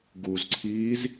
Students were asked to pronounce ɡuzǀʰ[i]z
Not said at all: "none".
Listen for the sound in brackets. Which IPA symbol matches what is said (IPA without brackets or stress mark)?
iː